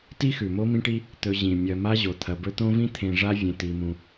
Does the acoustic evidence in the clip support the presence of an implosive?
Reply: no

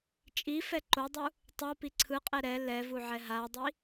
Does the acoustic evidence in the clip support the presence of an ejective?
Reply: yes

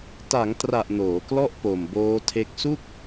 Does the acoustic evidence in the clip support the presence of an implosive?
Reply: no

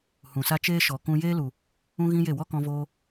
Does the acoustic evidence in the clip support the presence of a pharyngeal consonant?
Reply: no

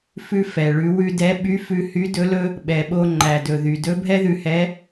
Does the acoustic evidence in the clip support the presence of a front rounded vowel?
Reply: yes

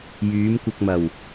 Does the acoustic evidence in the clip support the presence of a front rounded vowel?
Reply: yes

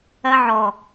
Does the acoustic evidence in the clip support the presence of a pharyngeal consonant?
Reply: yes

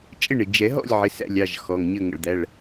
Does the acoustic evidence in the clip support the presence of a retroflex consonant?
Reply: yes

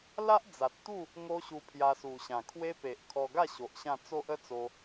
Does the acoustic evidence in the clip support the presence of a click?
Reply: no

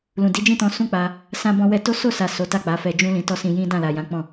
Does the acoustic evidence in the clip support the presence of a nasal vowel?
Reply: yes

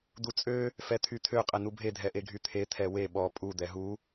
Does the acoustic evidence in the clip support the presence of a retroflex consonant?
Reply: no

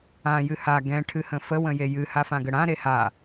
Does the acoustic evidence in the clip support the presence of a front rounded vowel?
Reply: no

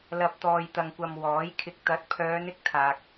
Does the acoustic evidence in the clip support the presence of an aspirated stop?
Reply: yes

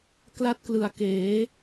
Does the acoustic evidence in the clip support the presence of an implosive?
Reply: no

